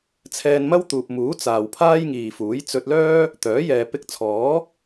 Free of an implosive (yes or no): yes